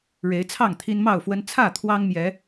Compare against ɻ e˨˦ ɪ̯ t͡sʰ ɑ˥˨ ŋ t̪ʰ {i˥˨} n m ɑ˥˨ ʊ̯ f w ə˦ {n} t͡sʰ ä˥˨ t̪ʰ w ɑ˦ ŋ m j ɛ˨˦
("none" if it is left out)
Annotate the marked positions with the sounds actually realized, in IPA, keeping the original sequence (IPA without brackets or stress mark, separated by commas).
i˦, n